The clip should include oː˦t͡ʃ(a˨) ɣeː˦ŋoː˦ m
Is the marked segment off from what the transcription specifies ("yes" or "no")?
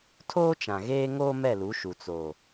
yes